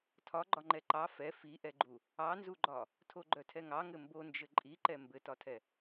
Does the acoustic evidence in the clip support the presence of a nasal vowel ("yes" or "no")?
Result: no